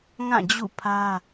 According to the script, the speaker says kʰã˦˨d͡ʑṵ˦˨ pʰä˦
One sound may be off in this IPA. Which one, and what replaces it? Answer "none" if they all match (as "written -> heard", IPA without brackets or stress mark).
kʰ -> ŋ